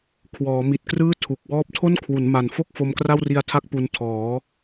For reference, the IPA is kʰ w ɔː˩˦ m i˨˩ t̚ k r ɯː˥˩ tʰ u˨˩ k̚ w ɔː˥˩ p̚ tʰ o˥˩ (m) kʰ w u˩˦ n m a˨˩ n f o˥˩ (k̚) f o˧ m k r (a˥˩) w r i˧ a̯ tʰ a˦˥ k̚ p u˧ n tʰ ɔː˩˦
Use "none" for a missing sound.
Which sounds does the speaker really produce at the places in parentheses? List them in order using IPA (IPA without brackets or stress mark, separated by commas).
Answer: n, k̚, a˥˩